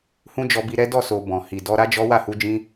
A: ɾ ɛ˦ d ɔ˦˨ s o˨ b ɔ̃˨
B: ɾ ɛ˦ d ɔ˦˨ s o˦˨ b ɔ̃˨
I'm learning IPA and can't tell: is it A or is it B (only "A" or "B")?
A